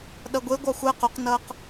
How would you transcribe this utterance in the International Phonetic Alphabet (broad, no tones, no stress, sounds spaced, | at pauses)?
ɗ ɐ ɡʷ e ɡʷ ɑ xʷ ɛ q o q n ɐː q